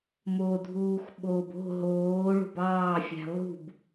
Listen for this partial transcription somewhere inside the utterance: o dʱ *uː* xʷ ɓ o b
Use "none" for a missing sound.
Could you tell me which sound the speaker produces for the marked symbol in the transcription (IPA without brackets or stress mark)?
uː